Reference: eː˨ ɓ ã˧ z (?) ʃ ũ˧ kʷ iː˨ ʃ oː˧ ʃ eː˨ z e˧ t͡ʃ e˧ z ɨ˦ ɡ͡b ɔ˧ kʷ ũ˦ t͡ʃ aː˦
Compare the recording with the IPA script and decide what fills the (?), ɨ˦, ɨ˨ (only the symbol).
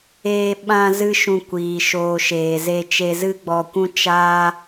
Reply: ɨ˦